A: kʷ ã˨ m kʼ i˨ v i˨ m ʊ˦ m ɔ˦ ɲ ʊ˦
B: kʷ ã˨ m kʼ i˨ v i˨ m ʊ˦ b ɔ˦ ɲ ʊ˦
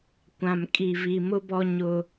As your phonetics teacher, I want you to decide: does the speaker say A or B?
B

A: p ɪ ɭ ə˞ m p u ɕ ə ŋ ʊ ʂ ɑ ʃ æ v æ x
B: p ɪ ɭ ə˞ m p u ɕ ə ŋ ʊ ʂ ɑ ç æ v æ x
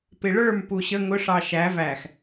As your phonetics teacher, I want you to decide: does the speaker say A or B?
A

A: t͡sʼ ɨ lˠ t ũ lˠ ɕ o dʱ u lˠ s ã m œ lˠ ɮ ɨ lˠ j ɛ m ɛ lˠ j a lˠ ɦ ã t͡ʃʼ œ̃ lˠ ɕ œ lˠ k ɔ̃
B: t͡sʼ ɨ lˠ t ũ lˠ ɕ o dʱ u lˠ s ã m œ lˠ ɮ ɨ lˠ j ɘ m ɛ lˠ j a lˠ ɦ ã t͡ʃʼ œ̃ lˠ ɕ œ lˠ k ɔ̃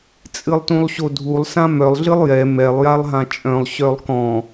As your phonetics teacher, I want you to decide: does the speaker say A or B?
A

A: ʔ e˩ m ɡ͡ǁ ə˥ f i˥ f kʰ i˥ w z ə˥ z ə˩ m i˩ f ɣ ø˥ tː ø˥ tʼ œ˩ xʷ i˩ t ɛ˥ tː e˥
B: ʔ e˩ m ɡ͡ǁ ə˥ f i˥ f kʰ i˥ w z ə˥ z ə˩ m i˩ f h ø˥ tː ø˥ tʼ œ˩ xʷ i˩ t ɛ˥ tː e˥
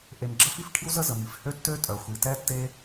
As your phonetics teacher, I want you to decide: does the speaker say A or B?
B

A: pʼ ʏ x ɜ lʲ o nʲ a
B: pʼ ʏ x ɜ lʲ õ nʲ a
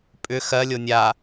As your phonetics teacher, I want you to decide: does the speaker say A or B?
A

